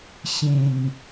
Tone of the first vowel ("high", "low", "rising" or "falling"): low